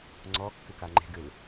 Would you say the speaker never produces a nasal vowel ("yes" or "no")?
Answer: yes